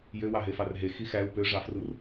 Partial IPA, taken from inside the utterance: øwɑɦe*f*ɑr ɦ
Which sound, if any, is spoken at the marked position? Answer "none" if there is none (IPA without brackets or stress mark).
f